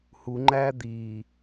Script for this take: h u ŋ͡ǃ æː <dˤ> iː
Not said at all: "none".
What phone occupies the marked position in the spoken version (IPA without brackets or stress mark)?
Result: d̪